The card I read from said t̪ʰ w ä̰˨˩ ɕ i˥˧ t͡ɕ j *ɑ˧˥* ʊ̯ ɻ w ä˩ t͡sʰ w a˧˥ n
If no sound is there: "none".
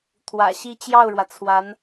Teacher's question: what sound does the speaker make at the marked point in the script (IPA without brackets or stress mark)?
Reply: ɑ˥˩